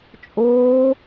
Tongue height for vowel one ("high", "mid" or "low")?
high